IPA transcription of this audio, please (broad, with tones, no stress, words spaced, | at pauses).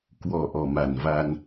kwɔ˨˩ ʔɔ˨˩ma˨˩nva˧n